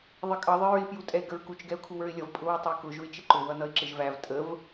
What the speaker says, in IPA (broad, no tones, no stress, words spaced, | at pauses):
ðˤɪkʼʌ ðˤɪɹɪ pjutʼɛɪ̯ɡəɹkut͡ʃ ɡɛʊ̯kʰuwə˞ɪ̯lʲʌv pʼʊwʊtˤə˞kʊ ʒʊɪ̯t͡ʃɪǃʊ wʌnʌɪ̯ǁɪʒvæv tʼəv